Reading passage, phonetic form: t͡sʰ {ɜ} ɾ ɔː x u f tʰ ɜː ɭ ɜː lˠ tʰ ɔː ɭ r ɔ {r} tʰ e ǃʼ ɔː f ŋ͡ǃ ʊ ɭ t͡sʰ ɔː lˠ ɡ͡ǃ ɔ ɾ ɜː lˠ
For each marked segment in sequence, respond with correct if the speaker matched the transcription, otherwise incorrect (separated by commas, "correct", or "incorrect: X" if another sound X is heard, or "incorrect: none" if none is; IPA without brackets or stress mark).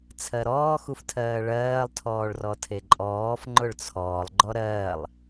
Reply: correct, incorrect: none